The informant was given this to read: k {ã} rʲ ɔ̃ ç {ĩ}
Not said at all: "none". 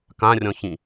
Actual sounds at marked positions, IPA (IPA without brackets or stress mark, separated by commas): ã, ĩ